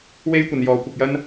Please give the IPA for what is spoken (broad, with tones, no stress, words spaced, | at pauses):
we˥j kʷɐ˧njɔː˧kʷɪ˧k̚jɐ˥n